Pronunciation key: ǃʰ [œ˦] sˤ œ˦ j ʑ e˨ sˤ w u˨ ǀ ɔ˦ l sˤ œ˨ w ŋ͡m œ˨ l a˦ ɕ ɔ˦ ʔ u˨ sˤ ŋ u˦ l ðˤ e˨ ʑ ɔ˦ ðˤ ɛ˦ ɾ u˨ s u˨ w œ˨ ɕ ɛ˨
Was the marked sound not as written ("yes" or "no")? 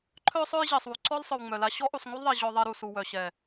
no